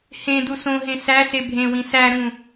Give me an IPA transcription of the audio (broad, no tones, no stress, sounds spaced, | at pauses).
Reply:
h ẽ d u s õ ɦ ẽ s æ s e bʱ ẽ w ĩ s æ ɾ ũ